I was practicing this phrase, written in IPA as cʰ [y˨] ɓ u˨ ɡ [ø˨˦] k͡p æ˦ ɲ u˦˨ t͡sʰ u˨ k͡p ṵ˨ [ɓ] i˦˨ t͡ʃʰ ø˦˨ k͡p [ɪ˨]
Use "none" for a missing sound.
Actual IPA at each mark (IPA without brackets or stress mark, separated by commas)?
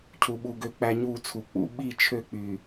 u˨, ø˨˦, ɓ, y˨